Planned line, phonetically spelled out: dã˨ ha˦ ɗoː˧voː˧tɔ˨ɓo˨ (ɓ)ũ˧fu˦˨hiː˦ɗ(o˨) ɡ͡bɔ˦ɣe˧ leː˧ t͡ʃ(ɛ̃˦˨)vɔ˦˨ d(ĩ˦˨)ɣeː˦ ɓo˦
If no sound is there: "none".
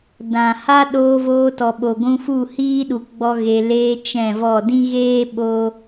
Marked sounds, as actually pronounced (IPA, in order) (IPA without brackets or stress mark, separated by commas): ɡʷ, u˨, ɛ̃˦˨, ĩ˦